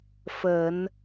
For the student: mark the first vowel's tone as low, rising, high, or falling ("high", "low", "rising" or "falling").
low